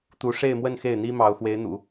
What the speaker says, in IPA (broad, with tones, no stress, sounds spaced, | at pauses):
t̪ u˧˥ ʂ e˥˧ ɪ̯ m w ə˥˧ n x e˥˩ ɪ̯ n̪ i˥ m ɑ˧˥ ʊ̯ x w e˧˥ ɪ̯ n̪ ṵ˨˩˦